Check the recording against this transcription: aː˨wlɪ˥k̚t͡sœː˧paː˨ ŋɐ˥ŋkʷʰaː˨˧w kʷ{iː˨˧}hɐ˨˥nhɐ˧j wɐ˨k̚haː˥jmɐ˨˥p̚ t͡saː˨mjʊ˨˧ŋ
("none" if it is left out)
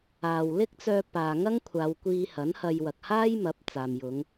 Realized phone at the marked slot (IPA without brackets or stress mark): iː˧